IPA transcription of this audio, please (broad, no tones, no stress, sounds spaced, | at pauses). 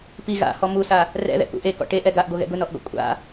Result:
p i ɣ a̰ h ɔ m u s a | r ɛ̰ ð ɛ̰ k ṵ ʔ e k ɔ̰ ʈ e ʔ ɛ ɡ a ʔ ɡ o ɣ ɛ̰ ɡ ʊ n ɔ ʔ ɡ ɔ̰ kʷʼ a̰